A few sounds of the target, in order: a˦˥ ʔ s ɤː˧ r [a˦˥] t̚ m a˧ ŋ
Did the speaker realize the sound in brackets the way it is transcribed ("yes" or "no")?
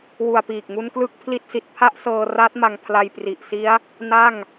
yes